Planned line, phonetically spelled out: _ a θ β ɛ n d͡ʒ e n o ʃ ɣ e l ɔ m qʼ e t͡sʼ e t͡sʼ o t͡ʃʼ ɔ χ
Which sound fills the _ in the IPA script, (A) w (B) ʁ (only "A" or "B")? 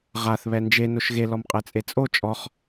B